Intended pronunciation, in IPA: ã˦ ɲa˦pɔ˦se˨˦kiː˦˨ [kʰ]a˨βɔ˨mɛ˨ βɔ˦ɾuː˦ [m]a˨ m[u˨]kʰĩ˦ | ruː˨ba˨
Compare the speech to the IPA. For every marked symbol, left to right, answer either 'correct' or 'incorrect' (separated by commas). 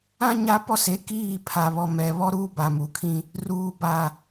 incorrect, incorrect, correct